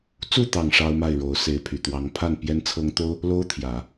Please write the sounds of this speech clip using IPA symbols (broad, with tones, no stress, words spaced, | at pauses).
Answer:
t͡su˥˩t̪ɑ˨˩ŋ ʂɑ˥ʊ̯ma˥˩ɪ̯ɻo˧˥ʊ̯ se˧˥ɪ̯pʰy˨˩t̪wɑ˧˥ŋ pʰa˥˩n pjɛ˧˥nt͡sʰɤ˧˥ŋt̪o˥ʊ̯ | lo˥ʊ̯t̪ʰjä˨˩˦